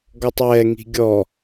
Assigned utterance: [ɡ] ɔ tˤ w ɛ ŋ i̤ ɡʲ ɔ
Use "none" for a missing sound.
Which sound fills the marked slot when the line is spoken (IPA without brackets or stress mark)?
ɡ